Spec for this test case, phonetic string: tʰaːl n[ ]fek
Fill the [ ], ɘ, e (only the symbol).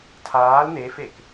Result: e